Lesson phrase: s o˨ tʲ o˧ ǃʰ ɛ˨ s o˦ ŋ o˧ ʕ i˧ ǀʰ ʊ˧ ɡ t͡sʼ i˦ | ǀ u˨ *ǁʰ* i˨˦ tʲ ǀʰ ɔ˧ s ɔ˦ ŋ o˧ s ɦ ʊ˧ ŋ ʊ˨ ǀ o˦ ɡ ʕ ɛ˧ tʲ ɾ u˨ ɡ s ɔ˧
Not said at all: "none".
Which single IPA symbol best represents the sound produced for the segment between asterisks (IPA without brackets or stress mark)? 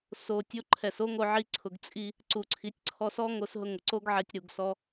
ǀʰ